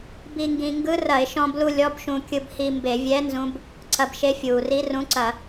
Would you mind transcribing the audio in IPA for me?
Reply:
b i˧ ŋ ɡ ĩ˧ ŋ ɡ ɯ˧˥ r ɐ˧˩˧ ɪ̯ ʃ ɔ̃˧ b l u˧ lʲ ɔ˧˥˧ b ʃ ũ˧ kʲ ɯ˧ b h i˧ m b e˧˩˧ vʲ ɛ˧˥ n z ũ˧˥ b | ǀ ɐ˧ b ʃ e˧˥ fʲ uː˩ r i˧˥ r ũ˧˥ ǀ ɐ˧˩˧

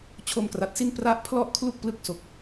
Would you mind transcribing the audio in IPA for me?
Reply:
t͡ɕʰ o˧ m k r a˨˩ t̚ s i˥˩ n p r a˥˩ ʔ pʰ l ɔ˥˩ ʔ kʰ l u˥˩ k̚ p l ɯ˦˥ k̚ s o˨˩ k̚

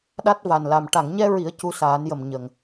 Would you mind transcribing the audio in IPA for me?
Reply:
ɗ a˦˥ t̚ v a˨˩ n l a˨˩ m ʈ a˨˩˨ ŋ ɲ ɛ˧ ɹ i˨˩˦ ə̯ c u˧ s aː˨˩˦ n j ə˨˩ m ɲ ə˨˩ ŋ

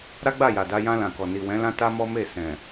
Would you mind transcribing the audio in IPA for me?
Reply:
ɾ a˦ ɡ͡b a˦˨ j a˨ d a˧ j ã˧ l ã˨ k ɔ˨ n i˨ w ɛ̃˨˦ l ã˦ t a˦ m ɔ˦ m e˦˨ s ɛ̃˨

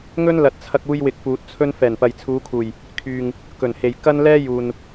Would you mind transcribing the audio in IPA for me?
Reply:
ŋ ɵ˥ n l ɐ˨ t̚ t͡sʰ ɐ˧ k̚ uː˥ j w ɪ˧ k̚ f uː˨ t̚ t͡sʰ ɵ˥ n f ɛː˨˩ n p ɐ˨ j t͡sʰ uː˨˧ kʰ uː˨˩ j | kʰ yː˨ ŋ | k ɵ˨˩ n h e˨ j k ɐ˥ n l ɛː˥ j uː˨ n

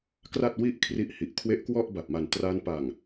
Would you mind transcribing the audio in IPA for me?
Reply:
k r a˥˩ t̚ w i˥˩ ʔ kʰ r i˥˩ ʔ h i˨˩ ʔ kʰ w e˦˥ ʔ k w ɔ˥˩ ʔ b a˨˩ p̚ m a˨˩ n t r a˧ n p a˨˩ ŋ

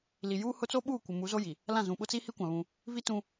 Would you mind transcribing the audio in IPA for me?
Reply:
l i˨ j uː˦ h ʊ˦ t͡s oː˦ ɓ uː˦˨ kʷ ɪ˨ m u˨˦ z o˦ j i˨ | l ã˦˨ z ũ˨ ɓ ʊ˦ t͡s iː˦ h i˦ kʷ ã˨ β ũ˦ | v i˦ t ũ˦

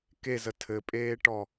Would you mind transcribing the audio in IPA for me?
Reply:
k e z ə tʰ ɘ pʼ eː ʈ ɔ

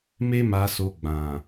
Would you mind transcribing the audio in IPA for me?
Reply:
m e˦ m a˧ s o˧ ɡ͡b ã˨

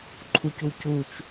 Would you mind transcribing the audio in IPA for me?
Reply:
ǃʰ u c u c u t͡ʃ

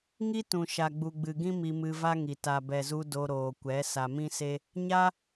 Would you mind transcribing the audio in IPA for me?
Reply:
ŋ i˦ t ũ˨ ʃ a˨ ɡ͡b u˨ ɡ͡b ɨ˨ ɡ ĩ˦ m i˧ m ɨ˧ v a˦ ŋ i˨ t a˨ b ɛ˨ z u˧ d o˧ ɾ oː˨ kʷ ɛ˨˦ s a˨ m ĩ˦ s e˦ | ɲ a˦

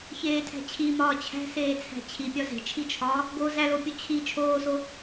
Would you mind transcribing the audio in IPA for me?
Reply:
ç eː tʰ æ̤ t͡ɕʰ i m ɒː t͡ɕʰ æ̤ s eː t͡sʰ æ̤ t͡ɕʰ i pʲ ɒ z e̤ t͡ʃʰ i t͡ʃʰ ɒː | ɡ o z æ l o pʲ o t͡ɕʰ i t͡ʃʰ oː s o

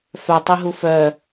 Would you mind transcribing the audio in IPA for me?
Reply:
f œ tˤ i ɦ u f œ

